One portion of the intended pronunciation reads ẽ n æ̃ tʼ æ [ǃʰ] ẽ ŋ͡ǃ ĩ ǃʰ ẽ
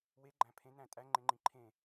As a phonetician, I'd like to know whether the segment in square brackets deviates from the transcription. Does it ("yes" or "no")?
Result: yes